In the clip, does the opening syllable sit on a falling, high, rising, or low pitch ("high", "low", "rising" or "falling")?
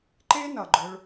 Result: high